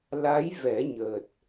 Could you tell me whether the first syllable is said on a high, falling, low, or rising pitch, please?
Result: rising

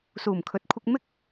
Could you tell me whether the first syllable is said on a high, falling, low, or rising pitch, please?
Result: low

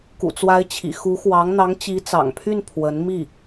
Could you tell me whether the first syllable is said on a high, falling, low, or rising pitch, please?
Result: low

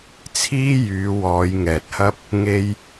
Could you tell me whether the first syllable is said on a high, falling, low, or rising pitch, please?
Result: high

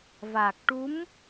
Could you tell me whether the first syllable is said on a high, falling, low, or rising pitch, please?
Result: low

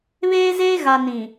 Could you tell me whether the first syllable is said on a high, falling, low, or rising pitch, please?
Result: high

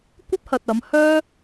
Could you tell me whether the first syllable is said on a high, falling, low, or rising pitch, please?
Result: high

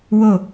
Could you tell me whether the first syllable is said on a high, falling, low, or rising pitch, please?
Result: falling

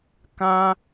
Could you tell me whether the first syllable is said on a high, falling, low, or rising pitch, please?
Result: high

